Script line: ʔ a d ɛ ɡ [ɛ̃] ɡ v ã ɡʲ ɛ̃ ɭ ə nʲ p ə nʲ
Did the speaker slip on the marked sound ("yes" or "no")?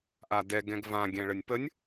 no